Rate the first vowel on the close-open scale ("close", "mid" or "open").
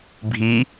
close